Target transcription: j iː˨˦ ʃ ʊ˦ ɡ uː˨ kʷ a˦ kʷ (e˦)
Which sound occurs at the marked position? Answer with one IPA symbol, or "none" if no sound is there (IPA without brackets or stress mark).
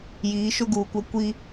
i˦